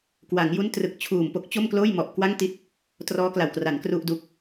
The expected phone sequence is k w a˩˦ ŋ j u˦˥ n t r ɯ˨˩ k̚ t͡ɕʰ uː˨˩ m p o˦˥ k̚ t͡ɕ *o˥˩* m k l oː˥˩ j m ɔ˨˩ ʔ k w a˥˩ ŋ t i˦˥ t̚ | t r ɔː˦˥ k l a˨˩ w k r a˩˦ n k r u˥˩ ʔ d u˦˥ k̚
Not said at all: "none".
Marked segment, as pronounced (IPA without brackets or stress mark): o˥˩